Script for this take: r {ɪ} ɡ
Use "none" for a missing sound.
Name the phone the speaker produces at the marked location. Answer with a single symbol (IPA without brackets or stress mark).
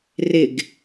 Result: ɪ